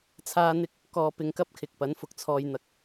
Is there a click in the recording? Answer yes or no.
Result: no